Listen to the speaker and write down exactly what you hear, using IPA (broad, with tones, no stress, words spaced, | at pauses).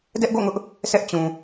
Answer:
dɛ˦ʔɡo̰˦˨ŋʊ˦ʔ | sʰɛ˦ʔt͡ɕũ˨